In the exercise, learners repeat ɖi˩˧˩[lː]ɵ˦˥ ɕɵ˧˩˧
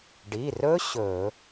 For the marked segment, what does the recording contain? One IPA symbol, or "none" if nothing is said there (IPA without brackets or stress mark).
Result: r